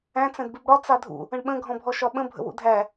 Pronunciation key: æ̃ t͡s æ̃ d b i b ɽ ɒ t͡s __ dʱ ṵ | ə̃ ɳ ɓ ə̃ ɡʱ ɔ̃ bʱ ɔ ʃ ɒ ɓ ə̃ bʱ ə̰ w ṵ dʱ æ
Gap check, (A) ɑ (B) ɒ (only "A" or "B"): A